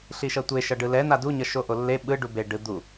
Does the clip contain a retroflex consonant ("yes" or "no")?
yes